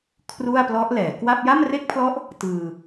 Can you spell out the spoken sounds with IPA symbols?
kʰru˥˩a̯plɔ˦˥ʔlɛː˩˦ kwa˥˩p̚ ja˥˩mre˥˩k̚pʰlɔ˦˥ʔ | tɯː˧

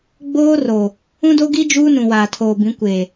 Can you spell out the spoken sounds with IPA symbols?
ɡ͡boː˦ro˨ | ũ˦do˦ɡi˦ d͡ʒuː˦ nũ˨waː˨tʰoː˨bĩ˨˦ kʷeː˨

